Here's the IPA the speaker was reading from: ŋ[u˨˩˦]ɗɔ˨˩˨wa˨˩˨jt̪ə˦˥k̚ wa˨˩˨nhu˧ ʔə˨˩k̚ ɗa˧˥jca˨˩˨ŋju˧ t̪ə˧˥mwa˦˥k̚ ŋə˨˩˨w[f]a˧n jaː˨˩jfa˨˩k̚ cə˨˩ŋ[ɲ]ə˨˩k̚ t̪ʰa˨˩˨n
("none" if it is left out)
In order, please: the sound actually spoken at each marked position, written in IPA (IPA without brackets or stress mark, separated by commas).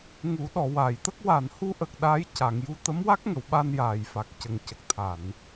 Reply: u˨˩˦, ɓ, c